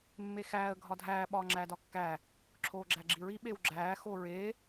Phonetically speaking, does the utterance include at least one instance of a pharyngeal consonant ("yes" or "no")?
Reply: no